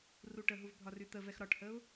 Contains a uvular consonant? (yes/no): no